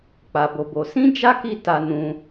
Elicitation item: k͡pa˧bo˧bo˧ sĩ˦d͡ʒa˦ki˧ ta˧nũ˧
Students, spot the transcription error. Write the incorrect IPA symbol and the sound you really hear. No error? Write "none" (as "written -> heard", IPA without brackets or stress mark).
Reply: none